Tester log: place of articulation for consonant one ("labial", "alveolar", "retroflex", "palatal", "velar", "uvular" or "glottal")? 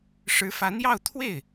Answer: retroflex